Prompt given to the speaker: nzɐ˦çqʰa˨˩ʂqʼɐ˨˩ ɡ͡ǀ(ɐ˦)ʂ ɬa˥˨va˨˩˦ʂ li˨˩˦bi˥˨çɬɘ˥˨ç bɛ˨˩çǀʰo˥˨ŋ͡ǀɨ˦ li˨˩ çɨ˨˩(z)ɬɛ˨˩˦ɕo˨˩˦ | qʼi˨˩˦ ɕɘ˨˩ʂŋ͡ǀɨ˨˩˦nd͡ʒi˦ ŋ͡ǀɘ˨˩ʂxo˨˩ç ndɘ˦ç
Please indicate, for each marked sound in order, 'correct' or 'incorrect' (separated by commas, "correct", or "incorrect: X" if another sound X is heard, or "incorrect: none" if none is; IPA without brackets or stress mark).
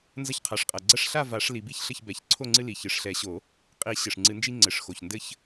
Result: correct, incorrect: ʂ